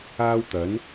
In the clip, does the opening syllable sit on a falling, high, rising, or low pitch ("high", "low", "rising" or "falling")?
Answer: high